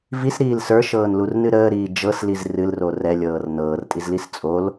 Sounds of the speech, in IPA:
v i s ɾ iː l s ə˞ ʃ ɤː n l u r n ɨ ɾ əː ɾ iː d͡ʒ ɤ s l i z r ɨ l r o r ɛ lʲ ɤː r n ɤː r tʼ i z l i s t͡sʼ o l

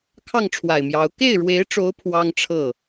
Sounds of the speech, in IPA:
kʰ ɑ˥˩ ŋ ʈ͡ʂʰ w a˨˩ ɪ̯ m j ɑ˧˥ ʊ̯ k e˥˩ ɪ̯ ɻ w e˧˥ ɪ̯ ʈ͡ʂ o˧˥ ʊ̯ pʰ w ɑ˥ ŋ ʈ͡ʂʰ ɤ˥˩

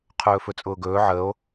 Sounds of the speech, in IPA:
qʰ ɵː f ɵ t͡sʼ ʊː ɡ ɵː ʕ ə o̯

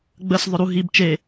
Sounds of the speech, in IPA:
ɡ͡b ə s ðˤ œ ɾ u ɦ i b t͡ʃ e

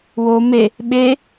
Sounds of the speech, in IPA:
w o m e | ɓ e

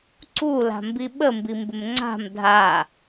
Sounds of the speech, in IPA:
ǀ u l a̤ m b i ɓ ə m b i m b ɪ m ŋ͡ǀ a̤ m dʱ a

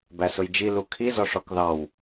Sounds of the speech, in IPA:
b æ s ʊ j d͡ʒ i l u kʰ i z ɔ ʂ ɔ k ð ɑ w

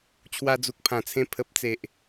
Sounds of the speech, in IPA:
t͡ɕʰ w a˧ d͡z u˨ k̚ pʰ ã˨˩ t͡sʰ ẽ˧ pʰ ə˨ p̚ t͡s e˨ ʔ

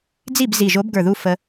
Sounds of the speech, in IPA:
d͡z i˥˩ b z i˧˩ ʒ o˨˥ b ɡ ə˞˧˩ ð u˧ f ə˧

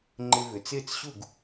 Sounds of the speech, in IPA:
ŋ͡ǃ ɪ˧ v ʏ˩ t͡s ɪː˥˩ t͡s ɕ u˥˩ ɡ

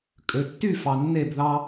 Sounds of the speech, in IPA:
kʼ ø˩ tː y˥˨ f ɑ˩ nː e˧˩ b ð ɑ˦

